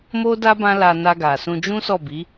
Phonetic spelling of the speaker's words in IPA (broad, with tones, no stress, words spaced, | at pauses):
mo˦da˦ bã˦la˧na˧ɡa˨ sũ˧d͡ʒũ˦sɔ˦˨bi˨˦